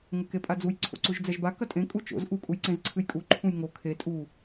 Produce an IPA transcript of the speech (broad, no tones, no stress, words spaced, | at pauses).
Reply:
ŋɘkepʼad͡zuj ǀʰo̰ǀuʒd͡zɛʒba kɐtʼẽ kʼut͡ʃo̰z ʔu kʼujǀẽzǀʰɨjkʼu ǃʰũjŋo kʰe tʼu